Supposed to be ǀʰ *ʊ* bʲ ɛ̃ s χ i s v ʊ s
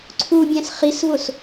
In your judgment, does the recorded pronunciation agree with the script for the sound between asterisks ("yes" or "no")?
no